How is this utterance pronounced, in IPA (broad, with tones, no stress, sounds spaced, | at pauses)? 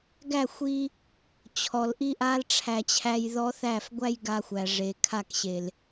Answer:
ɡ æ˦˨ xʷ i˧ | t͡ɕʰ ɔ˨ l ʔ i˦ ʔ a˦ l ʈ͡ʂʰ æ˨ t͡ɕʰ æ˧ j ð ɔ˦ θ æ˦˨ f ɡʷ æ˦ j ɡ a˧ xʷ æ˨ ʐ e˨ kʰ a˦˨ k ɕ e˨ l